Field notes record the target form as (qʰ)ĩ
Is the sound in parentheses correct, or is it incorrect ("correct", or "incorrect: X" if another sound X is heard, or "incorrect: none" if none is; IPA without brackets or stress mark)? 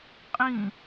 incorrect: qʼ